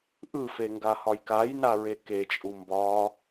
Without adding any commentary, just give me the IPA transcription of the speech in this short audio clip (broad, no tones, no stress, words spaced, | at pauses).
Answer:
ʔɯfeŋɡahɒj kajnaɹe ket͡ʃʼu mbɒ